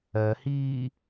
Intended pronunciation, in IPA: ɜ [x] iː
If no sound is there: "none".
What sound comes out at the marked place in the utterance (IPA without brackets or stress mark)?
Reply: h